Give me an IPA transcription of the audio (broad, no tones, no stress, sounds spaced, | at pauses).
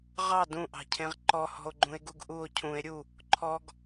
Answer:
ʁ ɑ d ũ ʔ ɑ̤ cʰ ẽ ʁ ǃ ɔ h ɔ̤ o̯ ɡ͡ǃ ũ e̯ ɡ u ɡ ʔ u o̯ cʰ ũ e̯ ɾʲ u | ǃʰ ɔ ɡ